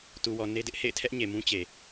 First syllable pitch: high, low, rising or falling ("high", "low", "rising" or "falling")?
low